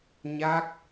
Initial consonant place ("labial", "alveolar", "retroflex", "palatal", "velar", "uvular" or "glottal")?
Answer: palatal